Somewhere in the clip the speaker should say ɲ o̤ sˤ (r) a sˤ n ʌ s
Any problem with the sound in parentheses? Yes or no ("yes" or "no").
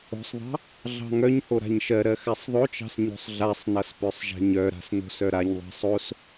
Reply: yes